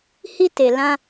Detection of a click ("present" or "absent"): absent